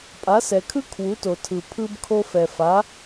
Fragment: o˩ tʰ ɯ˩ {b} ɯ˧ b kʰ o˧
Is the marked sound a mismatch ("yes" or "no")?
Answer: yes